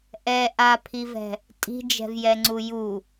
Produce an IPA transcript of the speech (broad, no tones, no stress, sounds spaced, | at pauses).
ʔ ɛ ʔ a pʰ i v ɛ̤ | tʼ i̤ d͡ʒ ɛ̤ v j ɛ ŋ͡ǀ u j u